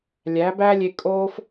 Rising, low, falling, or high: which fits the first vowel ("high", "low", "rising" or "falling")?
rising